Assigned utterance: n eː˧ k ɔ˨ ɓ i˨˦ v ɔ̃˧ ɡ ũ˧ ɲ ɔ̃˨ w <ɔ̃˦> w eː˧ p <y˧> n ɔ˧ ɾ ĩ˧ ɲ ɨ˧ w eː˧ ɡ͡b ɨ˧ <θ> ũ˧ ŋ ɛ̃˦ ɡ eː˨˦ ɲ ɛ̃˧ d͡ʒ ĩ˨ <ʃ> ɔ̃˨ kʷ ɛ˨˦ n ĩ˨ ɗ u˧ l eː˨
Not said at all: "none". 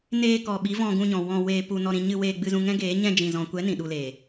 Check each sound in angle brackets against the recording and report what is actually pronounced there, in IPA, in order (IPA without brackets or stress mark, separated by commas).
ɔ̃˧, u˧, z, z